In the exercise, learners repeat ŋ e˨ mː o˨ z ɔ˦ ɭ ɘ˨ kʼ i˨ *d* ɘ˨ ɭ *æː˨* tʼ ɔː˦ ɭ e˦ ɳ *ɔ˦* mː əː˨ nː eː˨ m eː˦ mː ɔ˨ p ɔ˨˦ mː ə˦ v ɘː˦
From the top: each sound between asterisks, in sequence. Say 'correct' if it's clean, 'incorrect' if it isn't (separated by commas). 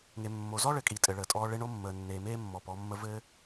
incorrect, incorrect, incorrect